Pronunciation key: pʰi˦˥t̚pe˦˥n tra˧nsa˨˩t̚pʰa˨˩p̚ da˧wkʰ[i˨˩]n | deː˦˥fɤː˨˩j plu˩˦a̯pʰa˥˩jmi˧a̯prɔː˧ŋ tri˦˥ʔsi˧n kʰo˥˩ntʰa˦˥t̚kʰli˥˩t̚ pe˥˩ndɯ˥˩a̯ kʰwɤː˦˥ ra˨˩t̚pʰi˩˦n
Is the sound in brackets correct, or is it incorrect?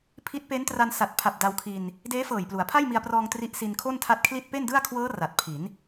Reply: incorrect